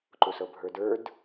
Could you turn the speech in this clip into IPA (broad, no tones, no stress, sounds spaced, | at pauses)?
ǃ u s ɤ bʱ ə˞ d ə˞ d